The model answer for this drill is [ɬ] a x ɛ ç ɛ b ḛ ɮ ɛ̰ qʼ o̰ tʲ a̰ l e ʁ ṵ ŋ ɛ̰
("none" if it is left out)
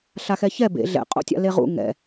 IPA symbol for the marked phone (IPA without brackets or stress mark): ɬ